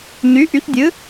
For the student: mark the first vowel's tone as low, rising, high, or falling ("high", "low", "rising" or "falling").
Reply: rising